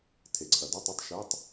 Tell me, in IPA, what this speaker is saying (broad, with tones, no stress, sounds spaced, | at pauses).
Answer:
tʰ e˩ ǀʰ ɐ˩ d o˧˥˧ tˤ ʏ˧˥˧ tˤ ʃ ɪː˧˥˧ tˤ